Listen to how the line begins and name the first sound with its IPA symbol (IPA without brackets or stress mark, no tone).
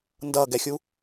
n